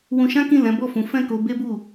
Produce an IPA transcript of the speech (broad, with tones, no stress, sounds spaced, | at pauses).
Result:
w ũ˧ ʃ ã˦ k ĩ˦˨ l ɛ̃˨˦ b ɔ˦˨ f ũ˨˦ f ɛ̃˦˨ k o˧ b e˦ b u˦˨